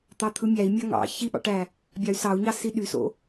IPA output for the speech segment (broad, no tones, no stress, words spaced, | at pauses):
t̪ɑt̪ʰɯmʲæi̯ mʲɑŋɑ̰ çiɓɑ̰ʈæ | bʲɑy̯sɑu̯ɲɑ siɗyso̰